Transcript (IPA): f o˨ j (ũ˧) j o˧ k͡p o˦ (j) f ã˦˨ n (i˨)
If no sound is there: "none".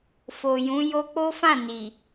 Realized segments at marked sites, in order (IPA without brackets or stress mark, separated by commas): ũ˨˦, none, i˨